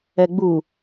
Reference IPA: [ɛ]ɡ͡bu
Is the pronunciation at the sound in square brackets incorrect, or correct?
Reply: correct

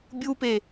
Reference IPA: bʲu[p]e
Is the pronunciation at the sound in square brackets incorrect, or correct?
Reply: correct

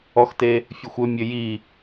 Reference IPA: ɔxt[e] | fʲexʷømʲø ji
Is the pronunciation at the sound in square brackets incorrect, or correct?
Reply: correct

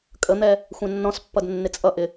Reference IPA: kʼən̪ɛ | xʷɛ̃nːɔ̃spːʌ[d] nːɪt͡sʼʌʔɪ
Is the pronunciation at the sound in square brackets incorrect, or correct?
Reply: correct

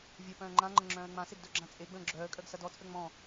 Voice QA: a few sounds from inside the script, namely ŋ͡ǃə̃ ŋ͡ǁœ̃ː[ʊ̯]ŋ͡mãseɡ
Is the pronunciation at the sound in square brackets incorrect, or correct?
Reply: incorrect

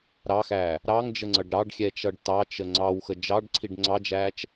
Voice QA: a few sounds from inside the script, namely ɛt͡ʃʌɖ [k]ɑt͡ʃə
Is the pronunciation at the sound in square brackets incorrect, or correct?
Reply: incorrect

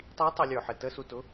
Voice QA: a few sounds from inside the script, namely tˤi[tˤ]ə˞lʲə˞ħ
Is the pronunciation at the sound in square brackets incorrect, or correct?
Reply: correct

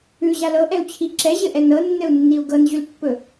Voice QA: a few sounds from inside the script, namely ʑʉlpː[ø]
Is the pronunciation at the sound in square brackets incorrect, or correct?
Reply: incorrect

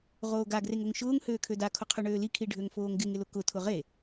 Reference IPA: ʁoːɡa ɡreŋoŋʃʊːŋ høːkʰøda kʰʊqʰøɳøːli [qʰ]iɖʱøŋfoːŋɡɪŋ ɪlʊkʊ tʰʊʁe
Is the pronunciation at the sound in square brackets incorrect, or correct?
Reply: incorrect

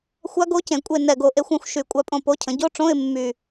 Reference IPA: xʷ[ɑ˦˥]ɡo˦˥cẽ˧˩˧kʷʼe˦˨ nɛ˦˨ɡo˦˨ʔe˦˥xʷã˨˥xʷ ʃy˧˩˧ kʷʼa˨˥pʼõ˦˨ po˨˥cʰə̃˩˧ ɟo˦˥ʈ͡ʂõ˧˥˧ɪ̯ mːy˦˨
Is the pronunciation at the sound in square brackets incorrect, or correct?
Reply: incorrect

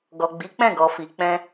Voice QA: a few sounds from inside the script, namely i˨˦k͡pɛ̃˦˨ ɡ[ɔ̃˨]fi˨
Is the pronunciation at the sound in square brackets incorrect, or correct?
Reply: incorrect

